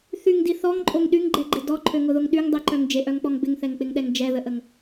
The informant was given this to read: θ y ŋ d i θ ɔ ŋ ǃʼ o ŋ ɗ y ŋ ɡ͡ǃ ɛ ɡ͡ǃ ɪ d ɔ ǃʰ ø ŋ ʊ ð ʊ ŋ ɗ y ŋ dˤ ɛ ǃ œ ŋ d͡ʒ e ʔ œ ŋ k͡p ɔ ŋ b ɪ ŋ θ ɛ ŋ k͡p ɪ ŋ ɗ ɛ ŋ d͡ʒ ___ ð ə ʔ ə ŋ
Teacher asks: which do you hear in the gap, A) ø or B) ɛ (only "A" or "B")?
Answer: B